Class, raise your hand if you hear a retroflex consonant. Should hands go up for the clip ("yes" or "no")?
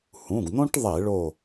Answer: yes